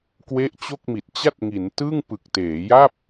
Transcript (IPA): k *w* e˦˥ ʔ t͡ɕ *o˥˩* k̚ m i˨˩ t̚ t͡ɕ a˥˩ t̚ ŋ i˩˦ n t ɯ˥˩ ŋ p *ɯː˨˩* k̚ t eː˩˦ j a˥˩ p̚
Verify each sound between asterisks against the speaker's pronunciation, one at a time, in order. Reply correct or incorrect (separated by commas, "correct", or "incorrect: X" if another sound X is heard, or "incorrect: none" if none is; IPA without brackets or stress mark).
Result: correct, correct, incorrect: ɯ˨˩